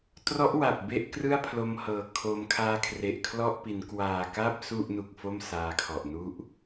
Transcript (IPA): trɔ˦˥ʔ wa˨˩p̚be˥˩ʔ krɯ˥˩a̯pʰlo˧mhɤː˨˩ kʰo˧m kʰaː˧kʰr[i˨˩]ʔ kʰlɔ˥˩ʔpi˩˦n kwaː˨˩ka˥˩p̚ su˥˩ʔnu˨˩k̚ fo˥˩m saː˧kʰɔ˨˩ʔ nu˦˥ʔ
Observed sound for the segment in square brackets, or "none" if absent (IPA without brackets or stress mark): e˨˩